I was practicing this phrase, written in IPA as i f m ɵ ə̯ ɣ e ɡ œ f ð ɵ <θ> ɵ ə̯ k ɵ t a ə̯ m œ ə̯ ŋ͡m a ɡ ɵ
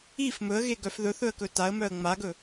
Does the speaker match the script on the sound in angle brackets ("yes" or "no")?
yes